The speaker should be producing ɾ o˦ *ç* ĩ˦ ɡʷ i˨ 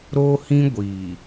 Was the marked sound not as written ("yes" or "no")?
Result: yes